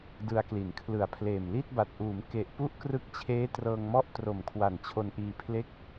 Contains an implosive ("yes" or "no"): no